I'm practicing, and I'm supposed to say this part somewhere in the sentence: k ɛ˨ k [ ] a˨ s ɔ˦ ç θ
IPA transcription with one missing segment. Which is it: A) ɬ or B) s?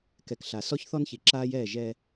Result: A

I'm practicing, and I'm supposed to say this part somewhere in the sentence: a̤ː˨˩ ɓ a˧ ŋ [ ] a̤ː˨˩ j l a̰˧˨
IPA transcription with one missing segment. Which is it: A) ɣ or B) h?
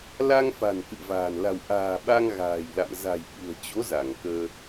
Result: A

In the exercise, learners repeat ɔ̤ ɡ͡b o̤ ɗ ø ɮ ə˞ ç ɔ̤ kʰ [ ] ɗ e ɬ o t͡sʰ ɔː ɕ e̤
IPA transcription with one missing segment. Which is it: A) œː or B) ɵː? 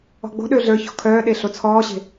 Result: A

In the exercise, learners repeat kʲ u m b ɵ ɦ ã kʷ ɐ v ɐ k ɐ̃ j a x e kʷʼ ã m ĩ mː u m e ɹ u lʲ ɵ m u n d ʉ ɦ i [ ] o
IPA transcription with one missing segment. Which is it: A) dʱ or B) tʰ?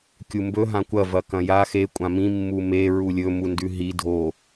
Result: A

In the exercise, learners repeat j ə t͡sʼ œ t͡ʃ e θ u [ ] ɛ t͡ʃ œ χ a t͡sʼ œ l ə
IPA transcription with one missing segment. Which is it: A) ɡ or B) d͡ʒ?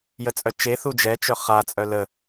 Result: B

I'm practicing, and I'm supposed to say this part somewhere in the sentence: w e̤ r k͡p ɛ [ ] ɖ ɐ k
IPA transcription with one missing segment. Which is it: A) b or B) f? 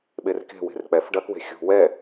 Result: B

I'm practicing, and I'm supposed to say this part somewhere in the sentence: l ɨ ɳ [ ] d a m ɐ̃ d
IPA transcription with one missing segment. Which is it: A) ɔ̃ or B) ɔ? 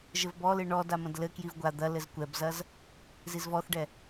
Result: B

